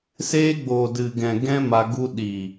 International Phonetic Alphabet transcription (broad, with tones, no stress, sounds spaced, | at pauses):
s eː˦ ɡ͡b oː˨ d ɨ˨ ɡ ɛ̃˨ ɡ ɛ̃˦ m a˧ ɡ u˧ ɗ i˨